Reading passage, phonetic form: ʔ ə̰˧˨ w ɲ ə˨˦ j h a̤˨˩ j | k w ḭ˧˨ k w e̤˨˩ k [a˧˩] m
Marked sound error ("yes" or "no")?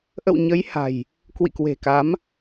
yes